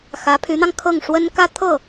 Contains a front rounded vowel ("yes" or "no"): yes